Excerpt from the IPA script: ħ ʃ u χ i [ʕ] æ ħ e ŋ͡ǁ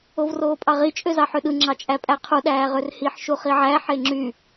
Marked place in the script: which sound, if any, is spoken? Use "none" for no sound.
ʕ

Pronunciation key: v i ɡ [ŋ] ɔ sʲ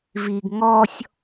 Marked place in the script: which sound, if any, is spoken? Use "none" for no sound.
ŋ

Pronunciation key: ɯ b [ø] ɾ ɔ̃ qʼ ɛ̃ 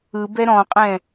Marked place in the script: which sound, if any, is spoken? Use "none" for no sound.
ɛ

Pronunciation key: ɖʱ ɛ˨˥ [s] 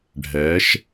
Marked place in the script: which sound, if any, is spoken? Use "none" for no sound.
ʃ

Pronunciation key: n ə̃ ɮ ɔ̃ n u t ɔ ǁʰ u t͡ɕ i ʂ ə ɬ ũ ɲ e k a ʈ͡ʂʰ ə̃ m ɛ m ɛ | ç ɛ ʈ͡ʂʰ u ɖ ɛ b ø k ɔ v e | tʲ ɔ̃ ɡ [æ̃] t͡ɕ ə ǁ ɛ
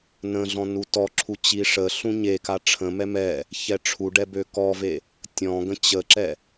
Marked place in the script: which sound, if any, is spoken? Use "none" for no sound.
ə̃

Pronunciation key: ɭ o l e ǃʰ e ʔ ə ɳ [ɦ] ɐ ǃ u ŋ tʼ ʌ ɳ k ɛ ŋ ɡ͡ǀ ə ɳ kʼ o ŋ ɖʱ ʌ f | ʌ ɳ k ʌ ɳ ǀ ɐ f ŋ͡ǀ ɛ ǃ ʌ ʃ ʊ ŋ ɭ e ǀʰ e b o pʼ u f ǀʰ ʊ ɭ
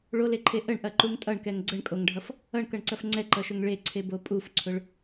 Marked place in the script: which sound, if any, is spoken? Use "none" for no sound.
ʔ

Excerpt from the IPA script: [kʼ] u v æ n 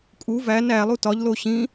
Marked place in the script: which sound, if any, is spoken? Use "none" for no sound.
kʼ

